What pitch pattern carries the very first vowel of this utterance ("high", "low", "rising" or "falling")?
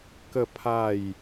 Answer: falling